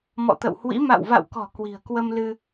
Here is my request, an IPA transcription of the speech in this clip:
m ɔ̰˧˨ t̪ ə̰˧˨ w h w ḭ˧˥ m a̰˧˨ w v a̰˧˨ w k ɔ̤˨˩ k w i̤˨˩ ə̯ k w ə˧ m l ɨ˧

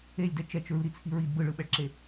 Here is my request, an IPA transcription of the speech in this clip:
e lʲ d ɛ t͡ʃ ɛ t͡ʃ ɹ ɯ ɾ i t͡sʰ i ɹ i d b ɯ ɭ ɯ ɓ ɛ ɭ ǁ e

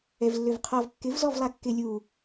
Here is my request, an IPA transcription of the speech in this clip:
ɛ v lː ø v qʰ ɔ v kː ɪ v z ɔ v lˠ a kː ɪ lʲ u

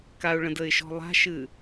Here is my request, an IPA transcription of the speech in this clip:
k a ʊ̯ ɭ ə̃ d ə ɪ̯ ʃ ɔ̤ lˠ a̤ ʃ ɨ

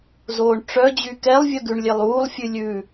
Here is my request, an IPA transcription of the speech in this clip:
z oː ɳ ʈ͡ʂ œ d͡ʑ y k ɛ lˠ vʲ œ ɡ ʉ ɳ lʲ e lˠ uː lˠ fʲ ʉ lʲ ʉ

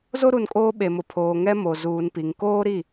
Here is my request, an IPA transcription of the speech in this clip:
z o˦ ɾ u˨ n kʼ oː˦ ɓ e˨ m ʊ˨ pʰ oː˨ ŋ ɛ˦ m o˨ z uː˨ n p i˨ ŋ k oː˦ ɾ i˦˨

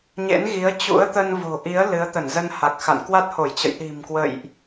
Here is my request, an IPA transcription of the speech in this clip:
ɲ ḛ˧˥ n ɣ i˨˦ ə̯ t͡ɕ ṵ˧˥ ə̯ t̪ ə˧ n v o̤˨˩ ʔ i˨˦ ə̯ l ɨ˨˦ ə̯ t̪ ə˧˩ n z ə˧ n h a˨˩ k̚ x a̰˧˨ n k w a˦˥ t̚ h o˧˩ j t͡ɕ ə̰˧˨ j ɗ i̤˨˩ m k w ə̰˧˨ j ʔ

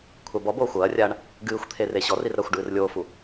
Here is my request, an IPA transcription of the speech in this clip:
kʷʰ a b ɔ b oː xʷ ɐː rʲ aː ɳ | ɡ ɨː xʷ t̪ʰ e r e ɕ ɔ r i r ɾ ɐ xʷ ɖ ɨː r lʲ oː f u

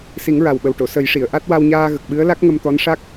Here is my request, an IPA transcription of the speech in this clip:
s i˨˩˦ ŋ ɹ a˨˩ w ɓ ə˨˩ w ʈ o˨˩˨ s ə˨˩˦ j ʂ i˨˩˨ ə̯ ʔ a˦˥ t̚ w a˧ w ɲ aː˧ ɣ ə˨˩ k̚ ɓ ɨ˧˥ ə̯ l a˦˥ k̚ ŋ ə˧ m t̪ ɔ˧˥ n ʂ a˦˥ k̚

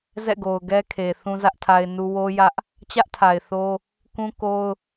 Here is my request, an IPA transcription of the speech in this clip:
z ɛ̰˦˨ ɡ o˨ ʊ̯ ɡ ɛ˦ kʰ e˨ θ ũ˦ z ä˦ ʔ tʰ a˦ ɪ̯ n u˦ w o˦ j ä˦ ʔ | t͡ɕ ä˦ ʔ tʰ a˨ ɪ̯ θ o˦ | k ũ˦ k o˦ ʊ̯

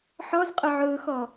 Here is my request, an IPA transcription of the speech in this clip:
ħ ɔ z qʼ ʊ ʕ ʊː x ɔ

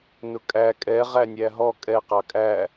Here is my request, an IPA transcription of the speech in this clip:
n ʊ kʼ æ kʼ ɛ ʁ æ nʲ æ ɦ ɔ kʼ ɛ q ɑ kʼ æ

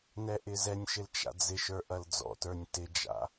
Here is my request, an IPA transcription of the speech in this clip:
n ɛ ʔ ɪ z ɛ nʲ ʃ ɪ l t͡ʃ a̰ d͡z ɪ ʃ ə˞ ʔ ɐ l d͡z ɔ̰ t ə˞ nʲ t ɪ d͡ʒ a̰

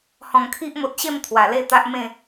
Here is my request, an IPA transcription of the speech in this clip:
h ɔ̃˨˩ ŋ kʰ i˦ ʔ m o˨ t̚ ɕ e˥˧ m t̪ʰ w a˨˩ l e˥˧ t̪ a˦ ʔ m ẽ˥˧

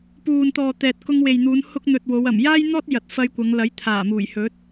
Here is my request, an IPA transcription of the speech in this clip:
p uː˨ n t̪ ɔː˨ t̪ ɛː˨ t̚ k ʊ˧ ŋ w e˨ j n̪ uː˨˧ n h ʊ˧ k̚ n̪ ɵ˨ t̚ w o˨˧ w ɐ˨˩ m j aː˥ j n̪ ɔː˥ t̚ j ɐ˨ t̚ f ɐ˧ j kʷ ɐ˨˧ ŋ l ɐ˨˥ j t̪ʰ aː˨˩ m uː˨˩ j h ɵ˨˥ t̚

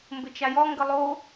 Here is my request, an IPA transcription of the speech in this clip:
m b ɘ t͡ʃ a j ɔ ŋ ɡ ə lˠ o

